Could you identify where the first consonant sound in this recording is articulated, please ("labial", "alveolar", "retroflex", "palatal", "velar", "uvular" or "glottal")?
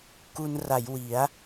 velar